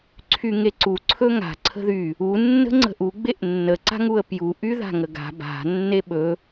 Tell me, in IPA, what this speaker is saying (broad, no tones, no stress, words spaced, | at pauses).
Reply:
ǀʰyŋeǀu ǀʰɵŋa̤ ǀʰə̤ðy | u nːə̤ŋ͡ǀə̤ʔu ɡ͡beʔnːə ǀa̤ŋuə̯pju ʔyða̤ŋəɡa̤ ba̤ nːeɓɵ